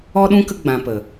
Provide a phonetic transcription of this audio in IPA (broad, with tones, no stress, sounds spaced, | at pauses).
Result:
ɔ˦ ɗ ũ˦ k ə˦ ɡ͡b ã˧ p ə˨